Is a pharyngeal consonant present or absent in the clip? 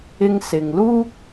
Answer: absent